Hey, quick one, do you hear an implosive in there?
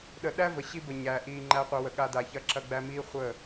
yes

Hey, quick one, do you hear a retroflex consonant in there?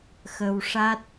yes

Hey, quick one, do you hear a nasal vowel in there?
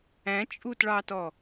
yes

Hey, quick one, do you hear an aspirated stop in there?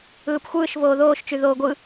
no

